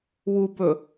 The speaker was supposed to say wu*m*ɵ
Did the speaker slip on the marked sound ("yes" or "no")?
yes